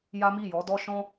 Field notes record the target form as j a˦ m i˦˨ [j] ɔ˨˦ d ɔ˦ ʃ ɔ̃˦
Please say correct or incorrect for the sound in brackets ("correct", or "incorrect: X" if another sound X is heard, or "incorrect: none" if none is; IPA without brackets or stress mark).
correct